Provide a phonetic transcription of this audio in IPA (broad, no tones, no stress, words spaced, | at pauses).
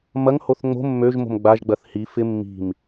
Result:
mɐŋhoθ ŋ͡mo̤ mːøʒmo̤m ɡ͡baʒɡ͡bɐθ hi fɪ mːi̤m